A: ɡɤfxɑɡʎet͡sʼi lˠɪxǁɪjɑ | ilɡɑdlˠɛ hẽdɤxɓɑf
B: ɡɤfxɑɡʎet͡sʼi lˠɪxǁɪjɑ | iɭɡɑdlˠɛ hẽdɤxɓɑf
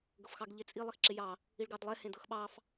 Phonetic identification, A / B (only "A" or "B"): B